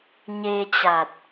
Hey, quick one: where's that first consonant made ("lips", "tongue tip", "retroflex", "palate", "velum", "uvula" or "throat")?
palate